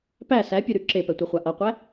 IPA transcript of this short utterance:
p æ s æ pʲ ʉ ɾ ʉ ǁ e p ɛ tʷ ɛ χʷ a ʔ ʌ qʷ æ

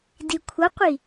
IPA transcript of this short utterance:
d i kʷʰ ʌ qʷ i

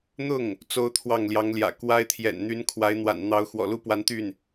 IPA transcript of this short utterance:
n̪ ʊ˥˩ ŋ | t͡s o˥ ʊ̯ t̪ʰ w ɑ˥˩ ŋ l j ɑ˧˥ ŋ l j ä̰˨˩ k w a˥ ɪ̯ t̪ʰ j ɛ̰˨˩ n n̪ y˧˥ n kʰ w a˧˥ ɪ̯ n̪ w a̰˨˩ n n̪ ɑ˧˥ ʊ̯ x w ɔ̰˨˩ l u˥ p w a˧˥ n t̪ y˥˩ n

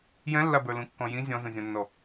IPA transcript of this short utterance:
j ɛ̃ lː a b ə˞ l ũ kː ɔ̃ j ĩ zʲ ɔ̃ z ũ zʲ ɔ̃ nː ɔ

